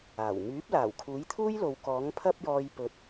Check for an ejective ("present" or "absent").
absent